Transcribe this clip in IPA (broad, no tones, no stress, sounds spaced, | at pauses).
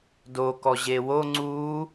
d o k ɔ ʑ e w o ŋ͡ǀ u